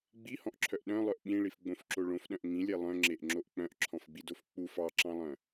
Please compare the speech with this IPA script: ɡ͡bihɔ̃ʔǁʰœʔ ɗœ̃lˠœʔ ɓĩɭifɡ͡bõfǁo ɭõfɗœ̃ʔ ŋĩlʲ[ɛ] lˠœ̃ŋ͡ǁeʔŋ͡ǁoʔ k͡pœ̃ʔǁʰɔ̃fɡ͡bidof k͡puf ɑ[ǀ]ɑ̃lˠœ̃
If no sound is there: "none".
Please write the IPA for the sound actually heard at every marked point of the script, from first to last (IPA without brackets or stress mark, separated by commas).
e, ǁ